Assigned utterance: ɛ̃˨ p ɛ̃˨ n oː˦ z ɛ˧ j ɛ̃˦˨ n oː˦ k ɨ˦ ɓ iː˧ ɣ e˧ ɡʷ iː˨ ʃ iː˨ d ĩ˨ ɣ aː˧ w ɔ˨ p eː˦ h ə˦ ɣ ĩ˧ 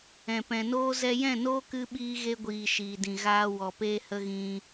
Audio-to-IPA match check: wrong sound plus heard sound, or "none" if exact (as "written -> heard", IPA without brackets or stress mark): none